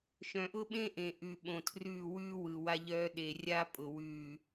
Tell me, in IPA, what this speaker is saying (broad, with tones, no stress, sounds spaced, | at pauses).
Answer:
ʃ œ̃˨ ʔ ʊ˦ ɓ ẽ˦ ʔ ẽ˨ ʔ ʉ˨ ɓ õ˨ tʰ r ʉː˦˨ w ʉː˦ w ɯ˨ w a˦ ʎ œː˦ ɗ e˨ rʲ a˦ pʼ ʊ˨ w ʉː˨